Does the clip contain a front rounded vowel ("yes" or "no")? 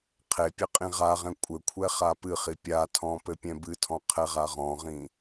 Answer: no